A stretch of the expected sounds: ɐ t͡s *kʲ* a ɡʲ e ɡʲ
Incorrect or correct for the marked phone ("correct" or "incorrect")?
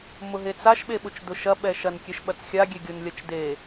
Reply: incorrect